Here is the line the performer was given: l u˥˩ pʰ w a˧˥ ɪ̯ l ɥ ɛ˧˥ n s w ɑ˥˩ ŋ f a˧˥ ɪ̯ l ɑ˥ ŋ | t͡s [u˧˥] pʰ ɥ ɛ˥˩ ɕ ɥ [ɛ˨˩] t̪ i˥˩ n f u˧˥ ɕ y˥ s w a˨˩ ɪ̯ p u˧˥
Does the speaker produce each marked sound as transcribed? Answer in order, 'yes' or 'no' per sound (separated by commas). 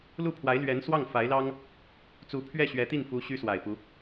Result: yes, no